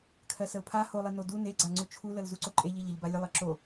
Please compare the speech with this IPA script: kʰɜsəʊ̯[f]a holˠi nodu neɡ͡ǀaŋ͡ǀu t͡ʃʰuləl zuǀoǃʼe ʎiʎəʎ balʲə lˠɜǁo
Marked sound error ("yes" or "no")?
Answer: yes